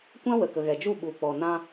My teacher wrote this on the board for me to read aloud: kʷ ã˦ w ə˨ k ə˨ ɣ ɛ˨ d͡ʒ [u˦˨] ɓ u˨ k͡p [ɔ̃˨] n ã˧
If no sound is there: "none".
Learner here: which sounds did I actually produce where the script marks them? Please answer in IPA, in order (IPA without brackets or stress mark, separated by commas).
u˦˨, ɔ˨